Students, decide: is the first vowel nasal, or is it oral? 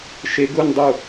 oral